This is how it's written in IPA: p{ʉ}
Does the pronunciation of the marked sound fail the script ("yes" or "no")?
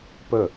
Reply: yes